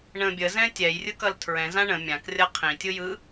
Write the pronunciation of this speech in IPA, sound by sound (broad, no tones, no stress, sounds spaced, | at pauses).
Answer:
ɳ ə̃ bʲ ə z ɛ̃ tʲ ɛ j rʲ ɯ k ʌ l tʰ ɹ ɛ̃ z ã ɳ ə̃ mʲ ã k rʲ ʌ qʰ ĩ tʲ ɯ j ɯ